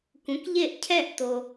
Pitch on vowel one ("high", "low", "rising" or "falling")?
rising